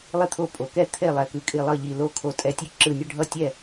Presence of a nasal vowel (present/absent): absent